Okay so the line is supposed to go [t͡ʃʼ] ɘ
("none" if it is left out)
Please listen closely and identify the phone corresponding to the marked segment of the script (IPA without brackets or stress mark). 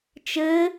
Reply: t͡ʃ